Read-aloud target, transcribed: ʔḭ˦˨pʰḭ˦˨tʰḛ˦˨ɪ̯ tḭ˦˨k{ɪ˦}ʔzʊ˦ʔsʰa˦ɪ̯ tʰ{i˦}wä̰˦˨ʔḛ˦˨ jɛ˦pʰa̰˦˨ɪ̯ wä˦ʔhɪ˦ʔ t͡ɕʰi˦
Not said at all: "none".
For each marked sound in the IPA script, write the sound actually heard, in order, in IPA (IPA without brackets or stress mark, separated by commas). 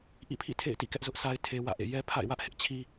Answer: ɛ˦, e˦